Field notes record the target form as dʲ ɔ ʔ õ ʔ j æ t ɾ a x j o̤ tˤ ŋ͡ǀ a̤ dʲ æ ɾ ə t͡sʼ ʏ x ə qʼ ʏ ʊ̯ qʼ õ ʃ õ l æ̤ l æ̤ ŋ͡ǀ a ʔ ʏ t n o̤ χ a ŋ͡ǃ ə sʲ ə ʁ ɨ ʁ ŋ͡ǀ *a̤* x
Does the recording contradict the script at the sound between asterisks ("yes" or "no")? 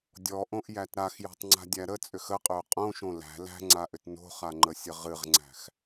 yes